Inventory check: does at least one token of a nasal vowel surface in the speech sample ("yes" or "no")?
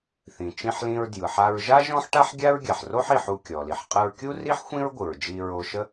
yes